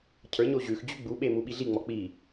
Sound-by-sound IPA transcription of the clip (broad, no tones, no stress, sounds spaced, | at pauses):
cʰ ə˞ ɲ o ʑ ʉ x d͡ʑ ʉ ɡ͡b u ɓ e m u ɓ i ɮ i ŋ͡m ɔ k͡p i